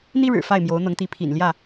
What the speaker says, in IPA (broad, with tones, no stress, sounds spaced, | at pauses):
n̪ i˦ ɻ ɻ̩˨˩ f a˥˨ ɪ̯ m j o˨˦ ʊ̯ n̪ ɤ˨˦ ŋ t̪ i˨˦ pʰ ḭ˨˩ n l j ä˥˨